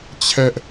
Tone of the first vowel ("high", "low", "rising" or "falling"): high